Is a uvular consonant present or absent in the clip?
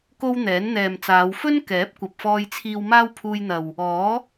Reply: absent